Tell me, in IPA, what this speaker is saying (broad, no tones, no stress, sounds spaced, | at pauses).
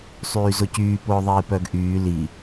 sˤ yː z ʊ c yː p ʊː ðˤ iː p œ ɡ ʔ yː l i